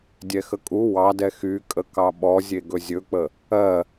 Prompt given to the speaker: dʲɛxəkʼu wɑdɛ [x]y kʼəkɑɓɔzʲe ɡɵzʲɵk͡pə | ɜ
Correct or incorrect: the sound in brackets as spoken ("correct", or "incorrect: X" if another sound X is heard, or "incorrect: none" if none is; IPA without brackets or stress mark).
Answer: correct